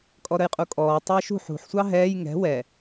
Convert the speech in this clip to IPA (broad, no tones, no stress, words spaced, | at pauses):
kʼɔɾəjqʼukʼɔː tˤəːʃṳħ ṳħ sʷɑɦɛːj ŋɛ̤ wɛ